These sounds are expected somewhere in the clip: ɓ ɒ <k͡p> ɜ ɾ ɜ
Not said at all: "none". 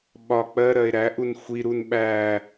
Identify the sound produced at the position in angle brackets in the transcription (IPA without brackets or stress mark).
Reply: k͡p